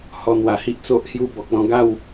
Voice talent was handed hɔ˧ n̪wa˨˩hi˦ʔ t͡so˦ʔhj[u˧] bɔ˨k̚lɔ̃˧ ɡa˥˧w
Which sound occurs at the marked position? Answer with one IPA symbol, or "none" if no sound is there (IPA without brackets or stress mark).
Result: u˥˧